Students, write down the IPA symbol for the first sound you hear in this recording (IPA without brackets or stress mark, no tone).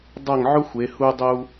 dˤ